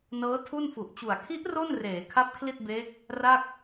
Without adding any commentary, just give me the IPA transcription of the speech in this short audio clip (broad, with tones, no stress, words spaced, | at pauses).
nɤː˦˥tʰu˥˩n fu˨˩ʔt͡ɕu˨˩a̯ kʰi˦˥ʔ ro˥˩n reː˩˦ kʰa˦˥p̚kʰli˥˩t̚beː˦˥k̚ | ra˥˩k̚